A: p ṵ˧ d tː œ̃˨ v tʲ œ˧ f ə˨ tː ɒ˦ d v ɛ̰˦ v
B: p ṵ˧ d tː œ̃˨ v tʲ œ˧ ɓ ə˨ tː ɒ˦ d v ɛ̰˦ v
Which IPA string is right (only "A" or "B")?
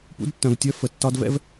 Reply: A